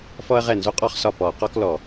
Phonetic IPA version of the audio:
f ɔ˥ ɐ̯ ʁ ɛ˥˩ n z o˥ qʼ ɔ˥ χ s ɒ˥˩ p ɔ˧˩˧ q ɔ˥ k l ɔ˧˩˧

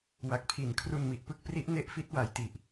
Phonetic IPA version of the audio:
w a˨˩ k̚ pʰ i˨˩ n kʰ r u˧ n m i˨˩ ʔ p ɯ˥˩ k̚ p r i˦˥ ʔ n e˦˥ ʔ f i˦˥ t̚ w a˨˩ j t i˨˩ ʔ

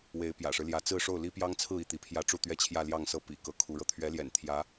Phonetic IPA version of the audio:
w e˧˥ ɪ̯ p j ä̰˨˩ ʂ ɻ̩˦ l j ä˧˥ t͡s ɹ̩˥˧ ʂ o˥˩ ʊ̯ l i˥ p j ɑ˥ ŋ t͡sʰ ɹ̩˥˧ i˥˩ t̪ i˧˥ pʰ j ä˥˧ ʈ͡ʂ u˥˩ t̪ ɥ ɛ˥ t͡ɕʰ j ä˥˧ l j ɑ˥˧ ŋ s ɤ˥˩ p ḭ˨˩ k ɤ˧˥ kʰ u˧˥ ɻ ɤ˧ t̪ʰ ɥ ɛ˧˥ l j ɛ̰˨˩ n t̪ʰ j ä˧˥

